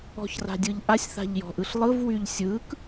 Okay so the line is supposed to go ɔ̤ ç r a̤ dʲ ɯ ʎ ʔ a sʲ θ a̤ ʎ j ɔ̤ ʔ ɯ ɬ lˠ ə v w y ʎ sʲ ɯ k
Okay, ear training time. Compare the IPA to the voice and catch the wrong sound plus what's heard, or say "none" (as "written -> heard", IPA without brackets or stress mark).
ə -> ɯ